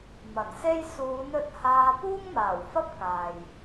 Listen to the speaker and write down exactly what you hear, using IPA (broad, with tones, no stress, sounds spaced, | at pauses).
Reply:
m ɐ˨˩ n s e˥ j s uː˨˧ n ɵ˧ t̚ h aː˧ p uː˥ ŋ m aː˨˩ w f ɐ˥ p̚ k aː˨ j